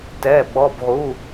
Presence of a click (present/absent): absent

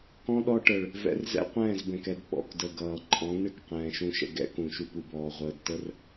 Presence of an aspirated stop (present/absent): absent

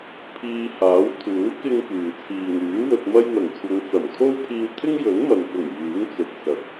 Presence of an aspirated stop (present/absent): present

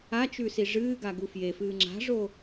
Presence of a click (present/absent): present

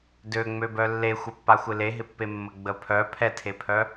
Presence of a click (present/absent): absent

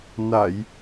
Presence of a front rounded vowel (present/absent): absent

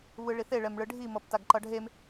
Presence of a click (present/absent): present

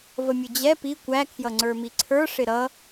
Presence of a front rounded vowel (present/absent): absent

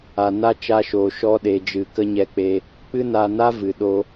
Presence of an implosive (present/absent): present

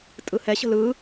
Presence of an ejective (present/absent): present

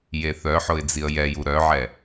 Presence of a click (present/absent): absent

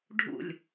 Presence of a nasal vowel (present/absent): absent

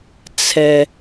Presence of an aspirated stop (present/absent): present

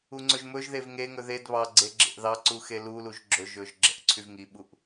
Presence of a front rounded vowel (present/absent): present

